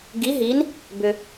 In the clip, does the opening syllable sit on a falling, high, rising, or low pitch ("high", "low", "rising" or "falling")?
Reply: rising